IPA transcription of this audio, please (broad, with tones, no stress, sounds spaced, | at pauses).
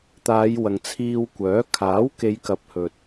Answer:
t̪ aː˨˧ j w ɐ˨ ŋ t͡sʰ iː˧ w kʷ œː˨˥ kʰ aː˨˥ w k e˨˧ j k ɐ˨˥ p̚ h ɵ˨ t̚